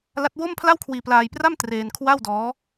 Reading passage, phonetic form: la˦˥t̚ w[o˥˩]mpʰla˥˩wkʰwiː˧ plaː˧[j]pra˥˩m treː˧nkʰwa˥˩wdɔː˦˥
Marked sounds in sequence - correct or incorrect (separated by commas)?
correct, correct